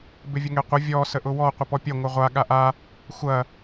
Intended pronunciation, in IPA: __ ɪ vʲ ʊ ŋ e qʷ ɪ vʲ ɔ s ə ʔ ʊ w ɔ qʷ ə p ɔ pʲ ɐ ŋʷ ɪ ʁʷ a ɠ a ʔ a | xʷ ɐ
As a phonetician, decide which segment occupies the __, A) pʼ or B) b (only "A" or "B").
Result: B